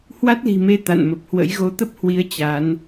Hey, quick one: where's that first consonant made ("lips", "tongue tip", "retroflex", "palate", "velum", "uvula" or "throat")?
throat